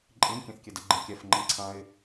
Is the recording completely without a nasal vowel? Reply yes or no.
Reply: no